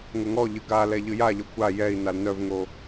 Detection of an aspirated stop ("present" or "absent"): absent